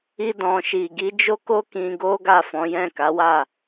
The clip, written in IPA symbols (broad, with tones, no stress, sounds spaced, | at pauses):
i˧ d ɔ̃˨ ʃ i˨ ɡ i˨˦ d͡ʒ o˦ k o˦ k ĩ˧ ɡ o˦ ɡ a˦˨ f ɔ̃˨˦ j ɛ̃˦˨ k a˨˦ w a˦˨